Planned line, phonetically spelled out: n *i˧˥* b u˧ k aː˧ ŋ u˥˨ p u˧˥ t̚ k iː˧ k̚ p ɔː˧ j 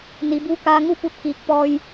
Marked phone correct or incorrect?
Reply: incorrect